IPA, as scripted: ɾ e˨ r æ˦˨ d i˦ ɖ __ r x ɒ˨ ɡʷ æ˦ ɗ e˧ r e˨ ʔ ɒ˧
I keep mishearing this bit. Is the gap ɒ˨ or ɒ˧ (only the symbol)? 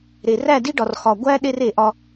ɒ˨